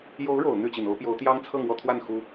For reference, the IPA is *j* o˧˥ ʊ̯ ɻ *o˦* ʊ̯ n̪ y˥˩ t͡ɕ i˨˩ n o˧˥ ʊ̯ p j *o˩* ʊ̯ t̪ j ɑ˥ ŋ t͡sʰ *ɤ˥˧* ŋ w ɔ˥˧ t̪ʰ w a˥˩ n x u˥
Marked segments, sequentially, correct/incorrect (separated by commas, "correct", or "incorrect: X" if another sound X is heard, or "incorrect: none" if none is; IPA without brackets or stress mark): correct, incorrect: o˨˩, incorrect: o˧˥, correct